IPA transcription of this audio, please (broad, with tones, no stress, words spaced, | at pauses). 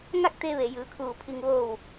ŋa˥˨k̚t̪e˧ʋe˩ jɯː˩˧kʰuː˧˩pʰi˧ŋ ʋo˧˩w